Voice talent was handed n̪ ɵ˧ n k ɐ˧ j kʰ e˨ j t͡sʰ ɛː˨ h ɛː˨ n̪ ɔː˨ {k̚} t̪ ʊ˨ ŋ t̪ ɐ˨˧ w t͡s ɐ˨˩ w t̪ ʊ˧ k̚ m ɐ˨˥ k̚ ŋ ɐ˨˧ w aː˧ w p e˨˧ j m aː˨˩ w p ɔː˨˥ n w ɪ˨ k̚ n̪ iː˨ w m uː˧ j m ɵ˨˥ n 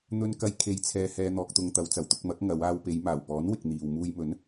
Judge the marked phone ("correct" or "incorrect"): correct